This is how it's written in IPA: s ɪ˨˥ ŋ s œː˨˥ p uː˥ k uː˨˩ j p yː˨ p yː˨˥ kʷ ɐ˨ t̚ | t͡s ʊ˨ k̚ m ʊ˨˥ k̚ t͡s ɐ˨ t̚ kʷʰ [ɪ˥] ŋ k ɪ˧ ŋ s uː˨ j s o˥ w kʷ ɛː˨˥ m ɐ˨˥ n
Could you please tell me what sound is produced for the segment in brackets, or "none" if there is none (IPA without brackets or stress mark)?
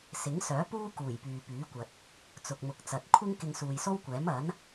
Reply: ɪ˥